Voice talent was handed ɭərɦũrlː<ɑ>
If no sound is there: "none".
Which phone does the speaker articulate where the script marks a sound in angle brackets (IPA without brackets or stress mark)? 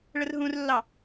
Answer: ɑ